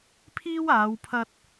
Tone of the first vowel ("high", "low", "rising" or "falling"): high